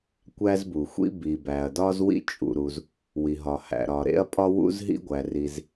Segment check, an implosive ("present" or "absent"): absent